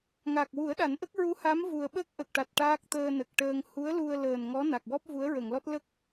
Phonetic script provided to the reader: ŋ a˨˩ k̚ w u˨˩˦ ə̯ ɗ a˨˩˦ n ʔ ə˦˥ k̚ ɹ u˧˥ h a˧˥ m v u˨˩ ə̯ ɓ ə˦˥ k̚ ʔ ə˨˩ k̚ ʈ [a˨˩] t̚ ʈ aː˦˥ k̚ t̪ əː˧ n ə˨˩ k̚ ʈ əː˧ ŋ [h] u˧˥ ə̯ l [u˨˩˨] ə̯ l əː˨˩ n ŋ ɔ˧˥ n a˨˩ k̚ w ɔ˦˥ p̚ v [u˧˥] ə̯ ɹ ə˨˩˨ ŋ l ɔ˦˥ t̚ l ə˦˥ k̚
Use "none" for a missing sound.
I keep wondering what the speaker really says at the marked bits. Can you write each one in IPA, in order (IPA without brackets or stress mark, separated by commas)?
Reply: a˨˩, h, u˧, u˧˥